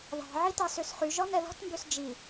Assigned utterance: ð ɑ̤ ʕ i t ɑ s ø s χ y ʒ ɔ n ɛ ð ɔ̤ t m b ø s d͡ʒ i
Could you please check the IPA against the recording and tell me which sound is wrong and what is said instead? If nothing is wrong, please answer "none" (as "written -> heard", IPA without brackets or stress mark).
none